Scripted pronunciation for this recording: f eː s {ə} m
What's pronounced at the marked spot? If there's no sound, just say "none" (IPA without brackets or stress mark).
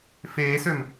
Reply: ø